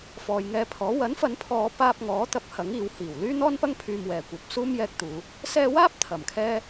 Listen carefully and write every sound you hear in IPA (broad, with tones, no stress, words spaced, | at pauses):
fɔː˨jŋɛː˧pʰɔː˨˥ wɐ˨˥nfɐ˨˧npʰɔː˨ paː˧p̚ŋɔː˨˥t̪ɐ˨˥p̚ hɐ˨˥ŋiː˨˧whiː˨˩w lyː˥n̪ɔː˥npɐ˥ŋ pʰyː˧mwɛː˨ kʷɐ˨p̚ suː˥mjɛː˧k̚t̪uː˨˧ | sɛː˧waː˥p̚ t̪ʰɐ˨˩mkʰɛː˥